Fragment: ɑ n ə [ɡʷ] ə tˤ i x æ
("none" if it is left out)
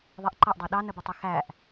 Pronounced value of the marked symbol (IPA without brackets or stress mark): b